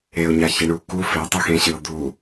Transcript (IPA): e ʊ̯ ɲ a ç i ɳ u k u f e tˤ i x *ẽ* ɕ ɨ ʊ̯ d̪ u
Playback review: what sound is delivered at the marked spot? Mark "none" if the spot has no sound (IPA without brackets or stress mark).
ẽ